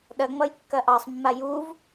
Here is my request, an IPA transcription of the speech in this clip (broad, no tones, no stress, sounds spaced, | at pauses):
ɗ ɐ ŋ͡m ʌ j kː ɐ ʔ ɑ sˤ mː a j u v